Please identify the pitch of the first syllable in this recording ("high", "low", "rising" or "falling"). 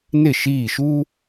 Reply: falling